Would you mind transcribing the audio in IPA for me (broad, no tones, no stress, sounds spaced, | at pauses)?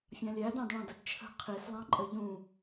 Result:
fʲ ɑ̃ lʲ æ d ɑ̃ d ɭ ɑ̃ d ə d t͡ʃʰ ə̤ qʰ i s lˠ ɑ̃ ǃʼ ə ʎ ũ